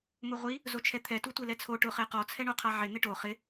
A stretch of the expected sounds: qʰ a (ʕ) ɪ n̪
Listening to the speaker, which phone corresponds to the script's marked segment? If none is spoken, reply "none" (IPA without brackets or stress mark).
ʕ